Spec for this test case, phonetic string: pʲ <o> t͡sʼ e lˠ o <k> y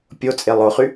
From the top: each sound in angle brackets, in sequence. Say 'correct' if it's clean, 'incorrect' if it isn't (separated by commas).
correct, incorrect